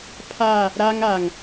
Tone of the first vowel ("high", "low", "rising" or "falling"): falling